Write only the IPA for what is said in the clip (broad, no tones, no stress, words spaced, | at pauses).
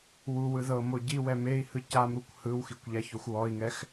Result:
wuwɯ ðɤmo ɟiwɛ mei̯hɯ camɾukʷ hɯwxikʷʎaçoxʷ wɔi̯ŋɛx